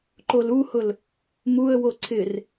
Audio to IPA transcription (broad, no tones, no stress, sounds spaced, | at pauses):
ǃ o l u h ʊ l | m u ə̯ w o ǀʰ ɪ r